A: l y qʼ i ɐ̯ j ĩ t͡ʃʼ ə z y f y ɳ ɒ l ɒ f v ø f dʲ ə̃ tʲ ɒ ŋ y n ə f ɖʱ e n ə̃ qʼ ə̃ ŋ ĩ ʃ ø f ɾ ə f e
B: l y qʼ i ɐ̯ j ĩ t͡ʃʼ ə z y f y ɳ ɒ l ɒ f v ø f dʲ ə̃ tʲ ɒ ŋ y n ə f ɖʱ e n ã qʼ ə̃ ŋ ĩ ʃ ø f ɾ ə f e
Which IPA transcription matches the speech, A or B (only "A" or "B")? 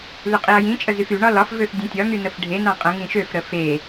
B